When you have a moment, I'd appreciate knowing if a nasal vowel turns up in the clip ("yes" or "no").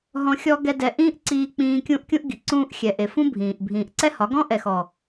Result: yes